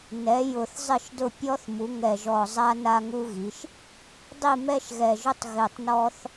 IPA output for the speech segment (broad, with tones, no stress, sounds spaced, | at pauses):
n ɛ˩˧ j ʊ˨˩ θ zˤ ɪ˦˨ ʃ d ʊ˦˨ pʲ ɔ˦ θ m u˩˧ ŋ ɛ˨˩ ʒ ɔ˨˩ zˤ a˦ n a˦ ŋ u˦ ɣ i˩˧ ʃ | dˤ i˦˨ m ɛ˦ ʃ ɣ ɛ˨˩ ʒ ʊ˦ tˤ ɣ e˨˩ tˤ n ɔ˦ θ